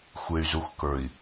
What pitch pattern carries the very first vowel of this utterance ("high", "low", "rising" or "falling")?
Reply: low